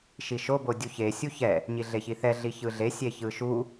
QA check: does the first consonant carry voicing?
no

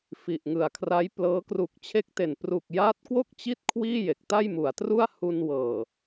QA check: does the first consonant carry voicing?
no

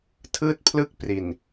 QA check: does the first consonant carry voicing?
no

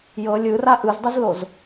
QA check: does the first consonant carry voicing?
yes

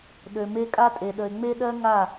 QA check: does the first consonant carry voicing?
yes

